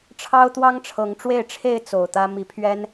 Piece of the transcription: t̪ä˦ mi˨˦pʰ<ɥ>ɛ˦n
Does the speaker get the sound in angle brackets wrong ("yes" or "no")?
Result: no